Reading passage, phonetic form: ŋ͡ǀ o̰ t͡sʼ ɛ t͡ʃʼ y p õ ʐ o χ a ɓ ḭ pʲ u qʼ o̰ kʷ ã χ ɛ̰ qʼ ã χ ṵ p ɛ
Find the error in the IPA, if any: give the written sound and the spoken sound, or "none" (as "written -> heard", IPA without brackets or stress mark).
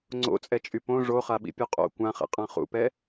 none